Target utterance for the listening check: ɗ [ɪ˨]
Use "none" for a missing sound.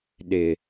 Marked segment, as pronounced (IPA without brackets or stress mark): ɪ˨